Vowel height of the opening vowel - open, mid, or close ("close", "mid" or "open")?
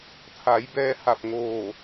open